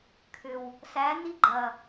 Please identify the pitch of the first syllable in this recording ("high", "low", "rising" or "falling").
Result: low